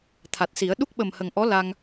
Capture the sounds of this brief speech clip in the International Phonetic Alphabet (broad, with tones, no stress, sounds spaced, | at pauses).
t̪ʰ a˨˩ t̚ s i˨˩˦ ə̯ ɗ u˦˥ k̚ ɓ ə˨˩ m h ə˨˩ ŋ ʔ ɔ˧˥ l a˧ ŋ